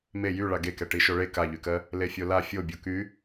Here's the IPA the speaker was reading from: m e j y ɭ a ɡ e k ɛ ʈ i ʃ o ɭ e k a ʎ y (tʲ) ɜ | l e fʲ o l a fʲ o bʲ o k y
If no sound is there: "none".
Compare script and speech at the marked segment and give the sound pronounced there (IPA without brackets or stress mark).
k